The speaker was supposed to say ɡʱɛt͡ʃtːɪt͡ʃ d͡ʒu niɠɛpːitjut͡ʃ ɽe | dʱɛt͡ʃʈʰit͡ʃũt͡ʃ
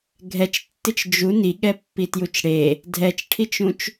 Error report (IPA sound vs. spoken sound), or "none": none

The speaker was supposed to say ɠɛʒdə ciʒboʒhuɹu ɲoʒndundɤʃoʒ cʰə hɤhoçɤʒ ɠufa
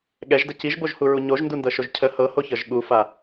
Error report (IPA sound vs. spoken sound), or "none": none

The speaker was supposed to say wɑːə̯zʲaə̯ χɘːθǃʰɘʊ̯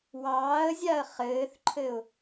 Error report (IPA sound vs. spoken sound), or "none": none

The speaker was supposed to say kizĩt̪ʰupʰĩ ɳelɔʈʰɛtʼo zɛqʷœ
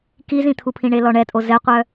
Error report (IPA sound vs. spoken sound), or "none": ʈʰ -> ɳ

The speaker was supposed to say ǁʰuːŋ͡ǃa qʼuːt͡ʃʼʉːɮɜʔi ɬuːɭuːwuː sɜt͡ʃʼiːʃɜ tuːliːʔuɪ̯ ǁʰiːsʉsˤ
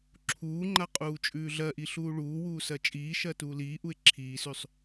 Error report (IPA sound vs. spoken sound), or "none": none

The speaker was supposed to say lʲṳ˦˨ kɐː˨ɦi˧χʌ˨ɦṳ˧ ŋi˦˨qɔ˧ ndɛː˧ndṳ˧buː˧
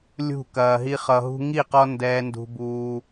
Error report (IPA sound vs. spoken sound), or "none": none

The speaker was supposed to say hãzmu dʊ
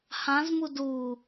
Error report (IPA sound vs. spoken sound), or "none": ʊ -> u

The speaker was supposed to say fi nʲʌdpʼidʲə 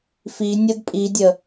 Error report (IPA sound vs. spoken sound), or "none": none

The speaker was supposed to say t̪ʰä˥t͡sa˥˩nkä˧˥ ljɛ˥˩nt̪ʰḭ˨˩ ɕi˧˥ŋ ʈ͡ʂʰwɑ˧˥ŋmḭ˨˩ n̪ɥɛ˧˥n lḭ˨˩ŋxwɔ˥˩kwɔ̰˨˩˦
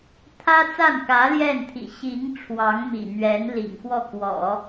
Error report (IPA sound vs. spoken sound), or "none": none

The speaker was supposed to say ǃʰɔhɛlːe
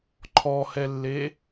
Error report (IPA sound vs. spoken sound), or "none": none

